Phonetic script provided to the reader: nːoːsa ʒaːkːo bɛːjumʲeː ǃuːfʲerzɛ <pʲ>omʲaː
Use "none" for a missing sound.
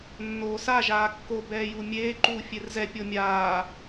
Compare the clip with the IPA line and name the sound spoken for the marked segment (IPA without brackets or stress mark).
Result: pʲ